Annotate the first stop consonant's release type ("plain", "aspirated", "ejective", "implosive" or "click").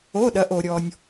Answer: implosive